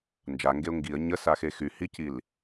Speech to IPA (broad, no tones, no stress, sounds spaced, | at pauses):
n d͡ʒ a ŋ ɡ e ʊ̯ ŋ ɡ i ə̯ ɲ ə s a x e x y h i c i l